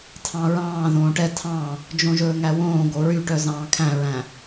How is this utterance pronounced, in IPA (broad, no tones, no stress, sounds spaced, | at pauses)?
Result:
tʰ ɑ̃ ɹ ɑ̃ː ð õː ʈ ɛ tʰ ɑ̃ | d͡ʒ õ ʒ ɵː ŋ æ w õː ɡ o ɹ y ʈ œ z ɑ̃ː kʰ æ̃ ɹ æ̃